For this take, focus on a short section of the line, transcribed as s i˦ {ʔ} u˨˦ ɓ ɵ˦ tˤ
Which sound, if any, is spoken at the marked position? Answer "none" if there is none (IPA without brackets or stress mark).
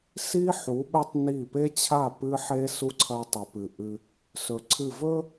ħ